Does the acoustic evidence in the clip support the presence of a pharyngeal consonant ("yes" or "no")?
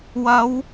no